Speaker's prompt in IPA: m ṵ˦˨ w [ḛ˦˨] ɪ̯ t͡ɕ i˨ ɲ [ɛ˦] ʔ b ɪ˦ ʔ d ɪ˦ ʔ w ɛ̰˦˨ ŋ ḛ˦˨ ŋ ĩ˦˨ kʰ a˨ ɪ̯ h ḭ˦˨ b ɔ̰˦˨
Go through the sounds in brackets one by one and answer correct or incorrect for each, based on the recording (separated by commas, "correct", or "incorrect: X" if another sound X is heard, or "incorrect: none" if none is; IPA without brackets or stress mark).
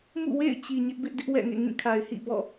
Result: correct, incorrect: ɪ˦